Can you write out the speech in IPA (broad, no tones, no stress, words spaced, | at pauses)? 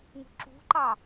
ŋṳǁṳǃɑ